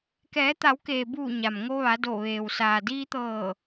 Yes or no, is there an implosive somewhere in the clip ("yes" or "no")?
no